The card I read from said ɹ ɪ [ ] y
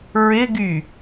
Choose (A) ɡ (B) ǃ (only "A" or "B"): A